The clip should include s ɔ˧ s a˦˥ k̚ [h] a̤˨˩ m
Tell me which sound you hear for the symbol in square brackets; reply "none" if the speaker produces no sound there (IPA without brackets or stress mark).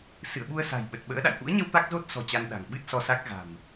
ɣ